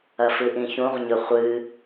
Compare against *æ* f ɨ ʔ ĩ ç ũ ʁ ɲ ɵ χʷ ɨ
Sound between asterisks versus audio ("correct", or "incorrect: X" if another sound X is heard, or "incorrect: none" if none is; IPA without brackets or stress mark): incorrect: ɐ